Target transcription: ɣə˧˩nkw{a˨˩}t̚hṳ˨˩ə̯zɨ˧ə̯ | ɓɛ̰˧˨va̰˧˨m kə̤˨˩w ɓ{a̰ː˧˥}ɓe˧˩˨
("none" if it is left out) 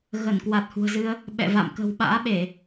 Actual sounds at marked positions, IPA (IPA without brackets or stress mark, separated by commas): a˨˩, a̰ː˧˥